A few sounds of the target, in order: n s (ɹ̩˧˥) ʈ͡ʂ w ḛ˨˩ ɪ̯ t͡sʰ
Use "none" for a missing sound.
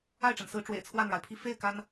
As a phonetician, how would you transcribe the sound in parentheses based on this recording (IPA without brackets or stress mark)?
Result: ɹ̩˧˥